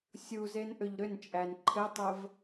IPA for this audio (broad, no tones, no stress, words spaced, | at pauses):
sʲuzen ʔʏʎɾʏnt͡ʃʼæn ǃʰɘtˤəv